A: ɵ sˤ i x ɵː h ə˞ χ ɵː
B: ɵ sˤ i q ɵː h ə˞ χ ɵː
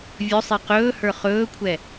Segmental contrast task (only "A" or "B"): B